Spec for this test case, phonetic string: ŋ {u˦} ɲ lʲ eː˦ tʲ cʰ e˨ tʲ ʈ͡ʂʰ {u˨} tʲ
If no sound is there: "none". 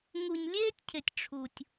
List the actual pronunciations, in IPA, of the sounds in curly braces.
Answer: u˨, u˨

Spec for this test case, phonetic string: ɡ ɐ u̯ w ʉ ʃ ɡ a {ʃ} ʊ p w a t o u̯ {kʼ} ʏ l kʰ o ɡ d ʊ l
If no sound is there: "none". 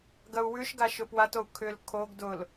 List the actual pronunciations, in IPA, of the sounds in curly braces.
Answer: ʃ, kʰ

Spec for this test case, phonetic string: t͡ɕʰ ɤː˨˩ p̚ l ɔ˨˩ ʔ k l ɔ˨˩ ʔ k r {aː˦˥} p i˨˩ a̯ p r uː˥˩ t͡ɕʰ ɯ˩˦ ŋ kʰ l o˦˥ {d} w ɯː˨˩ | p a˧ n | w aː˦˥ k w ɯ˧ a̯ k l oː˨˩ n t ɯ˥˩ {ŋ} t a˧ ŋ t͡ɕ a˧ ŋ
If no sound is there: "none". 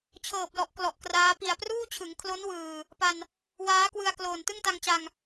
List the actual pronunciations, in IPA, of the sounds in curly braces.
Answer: aː˦˥, n, ŋ

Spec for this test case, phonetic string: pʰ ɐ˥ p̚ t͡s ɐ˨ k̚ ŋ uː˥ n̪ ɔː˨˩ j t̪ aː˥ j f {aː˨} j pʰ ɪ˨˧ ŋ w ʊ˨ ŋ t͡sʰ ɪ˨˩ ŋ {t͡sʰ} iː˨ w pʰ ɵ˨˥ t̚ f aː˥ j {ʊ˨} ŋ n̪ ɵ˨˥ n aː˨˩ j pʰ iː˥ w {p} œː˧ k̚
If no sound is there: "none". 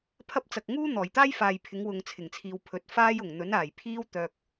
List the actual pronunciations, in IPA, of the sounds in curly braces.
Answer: aː˨, t͡sʰ, ʊ˨˩, t̪

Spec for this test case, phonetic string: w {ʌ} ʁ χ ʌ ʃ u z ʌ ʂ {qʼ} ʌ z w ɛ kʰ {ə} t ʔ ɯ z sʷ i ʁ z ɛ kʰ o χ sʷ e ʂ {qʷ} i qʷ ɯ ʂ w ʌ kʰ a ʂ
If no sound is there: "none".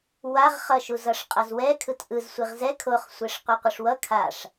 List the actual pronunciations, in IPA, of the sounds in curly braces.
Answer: a, qʼ, ɯ, qʷ

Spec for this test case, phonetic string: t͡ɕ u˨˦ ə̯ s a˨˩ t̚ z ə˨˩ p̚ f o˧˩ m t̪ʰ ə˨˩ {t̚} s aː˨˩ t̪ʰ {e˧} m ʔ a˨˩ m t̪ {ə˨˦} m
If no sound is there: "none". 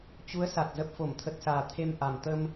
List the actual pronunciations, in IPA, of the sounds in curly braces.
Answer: t̚, e˧, ə˧

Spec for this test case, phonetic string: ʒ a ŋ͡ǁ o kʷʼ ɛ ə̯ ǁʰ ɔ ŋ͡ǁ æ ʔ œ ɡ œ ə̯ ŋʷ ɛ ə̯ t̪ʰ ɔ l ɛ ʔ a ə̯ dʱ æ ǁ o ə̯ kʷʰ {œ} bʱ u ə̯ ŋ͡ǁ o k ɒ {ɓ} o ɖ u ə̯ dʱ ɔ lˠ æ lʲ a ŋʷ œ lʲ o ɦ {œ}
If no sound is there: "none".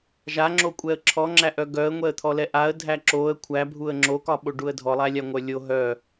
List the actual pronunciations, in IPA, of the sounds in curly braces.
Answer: æ, ɓ, œ

